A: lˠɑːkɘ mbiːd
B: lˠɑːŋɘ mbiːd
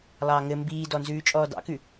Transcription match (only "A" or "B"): B